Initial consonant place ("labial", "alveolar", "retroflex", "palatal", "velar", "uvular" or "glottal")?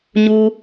palatal